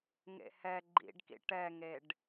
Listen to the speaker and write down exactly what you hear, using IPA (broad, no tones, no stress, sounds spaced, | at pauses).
ŋ ḛ h ɛ ɡ͡ǃ ḭ ɖ k ḭ ʈ ɛ ŋ e ɖ